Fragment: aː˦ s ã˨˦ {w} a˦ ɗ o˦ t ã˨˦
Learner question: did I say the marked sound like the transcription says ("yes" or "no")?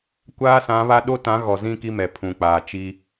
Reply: no